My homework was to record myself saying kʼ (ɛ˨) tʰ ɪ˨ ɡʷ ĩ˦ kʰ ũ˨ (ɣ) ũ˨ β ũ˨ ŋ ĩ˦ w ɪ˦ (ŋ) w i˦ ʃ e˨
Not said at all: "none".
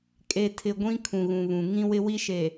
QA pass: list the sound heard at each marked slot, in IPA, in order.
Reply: e˨, ɣ, none

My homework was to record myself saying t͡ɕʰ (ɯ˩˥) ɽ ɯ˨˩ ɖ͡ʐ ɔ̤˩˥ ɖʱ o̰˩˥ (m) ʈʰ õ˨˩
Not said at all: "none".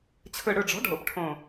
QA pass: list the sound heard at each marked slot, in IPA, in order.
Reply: ɯ˨˩, p

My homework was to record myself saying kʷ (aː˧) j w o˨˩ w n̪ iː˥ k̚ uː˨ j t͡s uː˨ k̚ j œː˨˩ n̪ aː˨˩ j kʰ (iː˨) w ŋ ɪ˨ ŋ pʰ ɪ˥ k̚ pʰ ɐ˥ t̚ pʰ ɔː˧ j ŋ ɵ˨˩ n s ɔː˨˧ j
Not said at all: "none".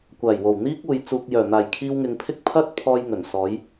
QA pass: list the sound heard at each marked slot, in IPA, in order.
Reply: aː˨˩, iː˧

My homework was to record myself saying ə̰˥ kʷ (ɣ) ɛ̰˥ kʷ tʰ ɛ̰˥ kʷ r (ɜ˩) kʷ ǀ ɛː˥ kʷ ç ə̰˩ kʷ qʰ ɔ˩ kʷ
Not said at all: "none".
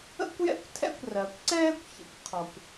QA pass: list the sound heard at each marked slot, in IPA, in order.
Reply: j, ɜ˩

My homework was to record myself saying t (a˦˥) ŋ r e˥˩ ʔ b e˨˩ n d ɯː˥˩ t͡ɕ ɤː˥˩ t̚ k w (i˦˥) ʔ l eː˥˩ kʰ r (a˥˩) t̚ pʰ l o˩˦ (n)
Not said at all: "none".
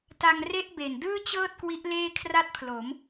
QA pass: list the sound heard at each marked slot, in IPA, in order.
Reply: a˧, i˦˥, a˥˩, m

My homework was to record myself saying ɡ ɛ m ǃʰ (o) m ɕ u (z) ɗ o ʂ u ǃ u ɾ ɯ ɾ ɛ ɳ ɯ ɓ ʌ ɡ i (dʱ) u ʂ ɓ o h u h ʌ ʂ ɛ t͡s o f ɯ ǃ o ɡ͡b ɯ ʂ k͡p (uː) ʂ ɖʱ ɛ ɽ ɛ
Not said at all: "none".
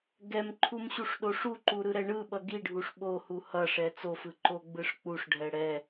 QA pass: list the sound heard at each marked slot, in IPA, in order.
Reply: u, ʂ, ɖʱ, u

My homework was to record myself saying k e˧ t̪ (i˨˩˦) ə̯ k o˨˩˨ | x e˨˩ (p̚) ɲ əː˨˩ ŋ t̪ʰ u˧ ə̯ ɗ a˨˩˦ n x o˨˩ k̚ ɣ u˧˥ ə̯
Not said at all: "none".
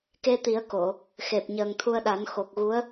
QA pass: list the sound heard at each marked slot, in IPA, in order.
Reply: i˨˩˦, p̚

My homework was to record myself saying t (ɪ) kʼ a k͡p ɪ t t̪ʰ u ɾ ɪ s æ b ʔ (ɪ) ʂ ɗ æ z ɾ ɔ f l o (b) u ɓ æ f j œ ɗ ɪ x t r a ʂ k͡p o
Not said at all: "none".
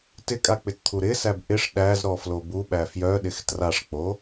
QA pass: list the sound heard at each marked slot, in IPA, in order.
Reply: ɪ, ɪ, b

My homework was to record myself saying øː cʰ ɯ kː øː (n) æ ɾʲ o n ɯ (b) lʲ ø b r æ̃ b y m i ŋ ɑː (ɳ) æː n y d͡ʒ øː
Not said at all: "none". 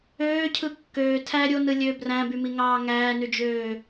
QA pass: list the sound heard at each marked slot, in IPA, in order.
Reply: tʰ, none, ŋ

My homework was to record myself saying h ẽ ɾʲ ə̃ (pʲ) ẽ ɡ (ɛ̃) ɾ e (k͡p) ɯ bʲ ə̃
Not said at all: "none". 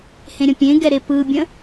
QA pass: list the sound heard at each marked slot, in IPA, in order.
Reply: pʲ, ɛ, p

